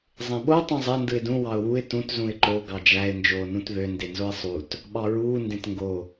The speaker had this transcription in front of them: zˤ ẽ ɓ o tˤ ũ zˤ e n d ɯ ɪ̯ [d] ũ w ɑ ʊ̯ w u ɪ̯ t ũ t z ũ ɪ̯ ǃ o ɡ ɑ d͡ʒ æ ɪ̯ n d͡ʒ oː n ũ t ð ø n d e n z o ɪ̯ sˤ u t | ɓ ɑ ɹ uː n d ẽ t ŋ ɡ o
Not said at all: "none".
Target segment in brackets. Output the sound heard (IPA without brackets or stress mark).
d